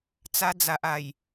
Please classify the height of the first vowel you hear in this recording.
low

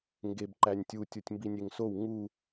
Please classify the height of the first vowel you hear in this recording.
mid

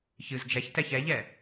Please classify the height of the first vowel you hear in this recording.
high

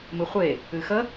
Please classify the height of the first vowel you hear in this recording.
high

